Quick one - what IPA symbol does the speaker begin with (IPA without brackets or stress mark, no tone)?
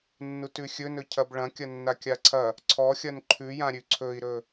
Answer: nː